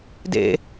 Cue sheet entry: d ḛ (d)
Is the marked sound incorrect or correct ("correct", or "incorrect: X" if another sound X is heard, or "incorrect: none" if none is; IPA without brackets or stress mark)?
incorrect: none